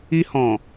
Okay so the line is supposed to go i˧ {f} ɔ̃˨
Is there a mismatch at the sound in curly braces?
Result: yes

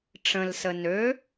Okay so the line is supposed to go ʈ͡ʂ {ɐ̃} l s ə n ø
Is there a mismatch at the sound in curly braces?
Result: yes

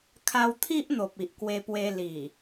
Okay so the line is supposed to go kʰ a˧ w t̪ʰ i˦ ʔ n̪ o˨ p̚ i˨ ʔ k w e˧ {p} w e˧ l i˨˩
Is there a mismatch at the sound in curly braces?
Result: no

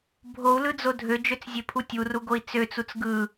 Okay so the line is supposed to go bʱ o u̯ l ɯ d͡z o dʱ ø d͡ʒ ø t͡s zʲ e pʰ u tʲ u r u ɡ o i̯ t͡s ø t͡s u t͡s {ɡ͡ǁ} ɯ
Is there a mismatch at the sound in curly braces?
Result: yes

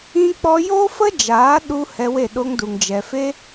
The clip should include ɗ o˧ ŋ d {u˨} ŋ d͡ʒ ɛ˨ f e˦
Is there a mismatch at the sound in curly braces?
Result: no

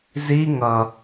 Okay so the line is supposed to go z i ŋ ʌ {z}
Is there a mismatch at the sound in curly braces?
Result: yes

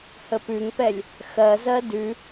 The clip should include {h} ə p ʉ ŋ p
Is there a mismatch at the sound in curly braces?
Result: no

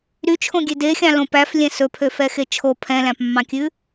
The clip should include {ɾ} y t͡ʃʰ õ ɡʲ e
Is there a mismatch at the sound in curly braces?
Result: no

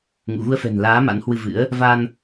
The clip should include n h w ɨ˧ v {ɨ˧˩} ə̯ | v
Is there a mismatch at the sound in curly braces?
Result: yes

